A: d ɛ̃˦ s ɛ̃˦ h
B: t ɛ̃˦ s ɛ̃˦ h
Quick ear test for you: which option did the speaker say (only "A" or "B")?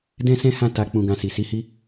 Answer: A